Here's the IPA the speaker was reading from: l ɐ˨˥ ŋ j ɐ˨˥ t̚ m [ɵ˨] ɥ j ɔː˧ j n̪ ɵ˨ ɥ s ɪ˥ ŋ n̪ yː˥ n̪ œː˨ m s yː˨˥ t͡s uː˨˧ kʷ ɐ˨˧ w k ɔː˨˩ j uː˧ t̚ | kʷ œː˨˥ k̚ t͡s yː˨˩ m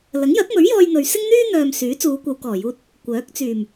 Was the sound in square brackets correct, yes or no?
no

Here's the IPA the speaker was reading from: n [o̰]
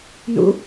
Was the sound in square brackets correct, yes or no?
no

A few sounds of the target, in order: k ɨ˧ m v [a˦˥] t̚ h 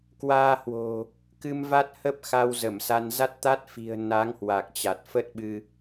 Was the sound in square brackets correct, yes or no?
yes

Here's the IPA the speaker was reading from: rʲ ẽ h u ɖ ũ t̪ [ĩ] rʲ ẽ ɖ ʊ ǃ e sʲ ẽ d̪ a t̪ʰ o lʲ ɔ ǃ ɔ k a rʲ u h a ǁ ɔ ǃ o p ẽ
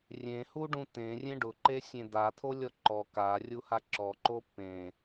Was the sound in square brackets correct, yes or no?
no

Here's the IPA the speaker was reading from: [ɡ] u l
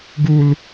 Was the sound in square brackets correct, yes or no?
yes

